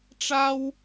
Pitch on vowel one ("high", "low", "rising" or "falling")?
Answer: high